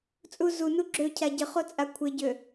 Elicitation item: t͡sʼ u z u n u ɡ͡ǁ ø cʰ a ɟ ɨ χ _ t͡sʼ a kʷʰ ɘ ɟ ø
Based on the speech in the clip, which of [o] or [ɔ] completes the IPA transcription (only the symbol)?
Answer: o